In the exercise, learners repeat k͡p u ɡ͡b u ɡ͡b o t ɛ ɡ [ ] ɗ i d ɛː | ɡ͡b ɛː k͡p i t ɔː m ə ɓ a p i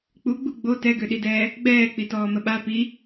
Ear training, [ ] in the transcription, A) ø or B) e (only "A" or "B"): A